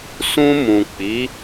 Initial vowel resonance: nasal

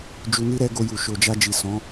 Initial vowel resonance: oral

